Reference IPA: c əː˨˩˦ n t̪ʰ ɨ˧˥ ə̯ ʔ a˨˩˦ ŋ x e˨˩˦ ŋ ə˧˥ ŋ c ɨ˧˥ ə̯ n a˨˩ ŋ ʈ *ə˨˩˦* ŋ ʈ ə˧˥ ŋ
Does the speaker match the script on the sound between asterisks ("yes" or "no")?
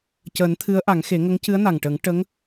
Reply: yes